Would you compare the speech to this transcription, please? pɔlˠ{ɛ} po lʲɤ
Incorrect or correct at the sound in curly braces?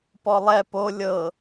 correct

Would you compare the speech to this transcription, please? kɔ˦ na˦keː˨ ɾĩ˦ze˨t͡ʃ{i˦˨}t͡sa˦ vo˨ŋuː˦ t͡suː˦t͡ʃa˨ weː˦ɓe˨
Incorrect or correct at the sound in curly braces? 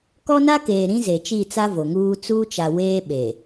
correct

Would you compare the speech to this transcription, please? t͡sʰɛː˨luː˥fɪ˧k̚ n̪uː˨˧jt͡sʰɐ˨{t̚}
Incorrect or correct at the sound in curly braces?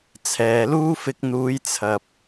incorrect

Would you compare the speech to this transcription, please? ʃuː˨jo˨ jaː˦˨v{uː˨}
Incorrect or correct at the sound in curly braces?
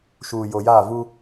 incorrect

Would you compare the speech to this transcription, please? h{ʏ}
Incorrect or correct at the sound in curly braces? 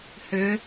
correct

